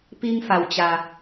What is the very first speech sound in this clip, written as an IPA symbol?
p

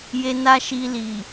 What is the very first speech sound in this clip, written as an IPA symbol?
j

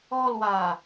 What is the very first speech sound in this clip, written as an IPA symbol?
ɔ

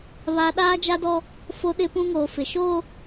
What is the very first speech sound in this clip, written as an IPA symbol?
β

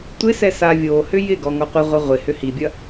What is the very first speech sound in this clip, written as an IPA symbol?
tʷ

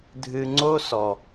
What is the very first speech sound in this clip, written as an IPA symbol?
dʱ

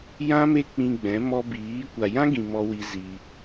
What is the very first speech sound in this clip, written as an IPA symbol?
j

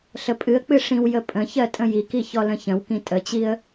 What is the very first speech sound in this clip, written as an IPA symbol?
ɬ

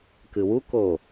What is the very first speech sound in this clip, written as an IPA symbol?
k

